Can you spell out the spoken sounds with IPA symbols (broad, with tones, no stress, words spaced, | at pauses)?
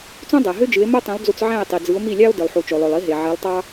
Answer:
t͡sũ˥dˤæ˩ɦø˥d͡ʒɯ˩˥e̯ mo˥tˤĩ˩˥lˠd͡zu˧t͡s ʕæ̃˥˩e̯tˤi˩d͡zɯ˩˥o̯ mi˥˩lʲɑ˥o̯ dɯ˩lˠħu˩t͡ʃo˩lˠø˩lˠ i˩˥ɦe˩ ʕe˩˥lˠ tˤɑ˥